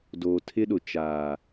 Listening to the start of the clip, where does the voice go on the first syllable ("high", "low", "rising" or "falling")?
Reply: low